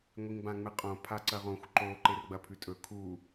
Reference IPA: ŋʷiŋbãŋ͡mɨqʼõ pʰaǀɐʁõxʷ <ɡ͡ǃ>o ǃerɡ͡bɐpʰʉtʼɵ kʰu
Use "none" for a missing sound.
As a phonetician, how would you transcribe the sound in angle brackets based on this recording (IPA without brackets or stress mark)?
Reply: ǃ